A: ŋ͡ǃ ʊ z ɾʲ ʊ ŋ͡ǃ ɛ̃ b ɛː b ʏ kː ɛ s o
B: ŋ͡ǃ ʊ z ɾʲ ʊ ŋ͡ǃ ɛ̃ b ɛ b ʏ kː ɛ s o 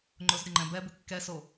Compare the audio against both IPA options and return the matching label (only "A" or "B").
B